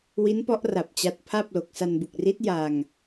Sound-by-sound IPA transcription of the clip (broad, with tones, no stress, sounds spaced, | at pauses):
w i˦˥ n p ɔ˦˥ ʔ r a˨˩ p̚ t͡ɕ a˦˥ t̚ pʰ a˥˩ p̚ l o˨˩ k̚ s a˧ n b u˨˩ k̚ r i˦˥ t̚ j a˧ ŋ